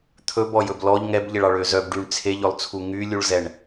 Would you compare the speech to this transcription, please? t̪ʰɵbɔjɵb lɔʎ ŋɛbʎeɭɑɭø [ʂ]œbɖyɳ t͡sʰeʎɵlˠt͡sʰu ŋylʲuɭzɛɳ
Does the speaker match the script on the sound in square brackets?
no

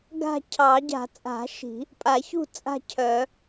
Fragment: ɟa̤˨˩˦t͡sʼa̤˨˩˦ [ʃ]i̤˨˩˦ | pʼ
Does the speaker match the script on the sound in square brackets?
yes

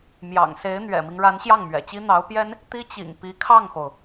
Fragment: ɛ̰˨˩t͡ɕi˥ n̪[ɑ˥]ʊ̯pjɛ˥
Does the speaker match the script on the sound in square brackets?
no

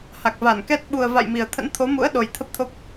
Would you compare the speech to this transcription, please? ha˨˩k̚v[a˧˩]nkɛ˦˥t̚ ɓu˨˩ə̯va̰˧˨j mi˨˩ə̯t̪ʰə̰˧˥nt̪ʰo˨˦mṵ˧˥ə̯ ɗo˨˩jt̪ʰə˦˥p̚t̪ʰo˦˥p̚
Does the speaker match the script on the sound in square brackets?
yes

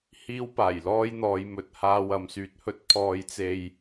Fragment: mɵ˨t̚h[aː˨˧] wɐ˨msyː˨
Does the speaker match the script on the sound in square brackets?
no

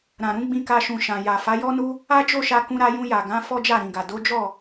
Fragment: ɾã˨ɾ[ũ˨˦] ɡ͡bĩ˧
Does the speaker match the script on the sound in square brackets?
yes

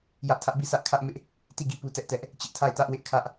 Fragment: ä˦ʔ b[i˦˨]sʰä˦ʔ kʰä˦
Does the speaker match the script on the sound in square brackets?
yes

